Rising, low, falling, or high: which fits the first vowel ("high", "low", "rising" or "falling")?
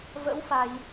rising